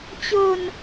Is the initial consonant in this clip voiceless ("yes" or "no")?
yes